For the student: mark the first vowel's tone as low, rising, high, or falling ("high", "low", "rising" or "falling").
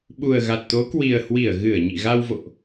low